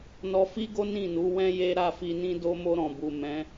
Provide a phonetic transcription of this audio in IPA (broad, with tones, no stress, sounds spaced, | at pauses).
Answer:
n ɔ˧ f i˦ ɡ o˦ n ĩ˦˨ n u˨˦ w ɛ̃˦ j e˦ ɾ a˦˨ f i˧ n ĩ˦ d o˧ m o˧ ɾ ɔ̃˨ b u˨ m ɛ̃˨˦